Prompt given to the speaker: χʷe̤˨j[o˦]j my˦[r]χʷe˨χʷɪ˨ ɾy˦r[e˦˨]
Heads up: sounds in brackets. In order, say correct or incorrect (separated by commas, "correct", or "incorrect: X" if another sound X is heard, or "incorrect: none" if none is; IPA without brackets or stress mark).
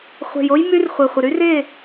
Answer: correct, correct, correct